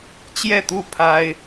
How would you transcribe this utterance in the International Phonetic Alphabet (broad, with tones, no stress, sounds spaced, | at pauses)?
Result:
t͡ɕ j ɛ˥˨ t̪ u˥˨ pʰ a˦ ɪ̯